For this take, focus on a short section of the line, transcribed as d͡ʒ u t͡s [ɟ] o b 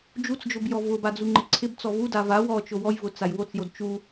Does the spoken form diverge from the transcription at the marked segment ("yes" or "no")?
yes